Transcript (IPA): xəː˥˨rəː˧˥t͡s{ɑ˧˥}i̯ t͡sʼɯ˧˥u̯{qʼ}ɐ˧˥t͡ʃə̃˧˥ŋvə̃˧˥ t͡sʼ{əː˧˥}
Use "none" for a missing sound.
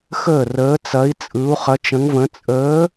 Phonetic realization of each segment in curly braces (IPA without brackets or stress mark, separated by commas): ɐ˧˥, χ, əː˧˥